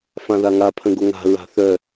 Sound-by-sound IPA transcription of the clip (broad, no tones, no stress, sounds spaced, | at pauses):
f ã ð a ŋ a pʰ ə̃ ɡ o ŋ a̤ ɹ a̤ θ œ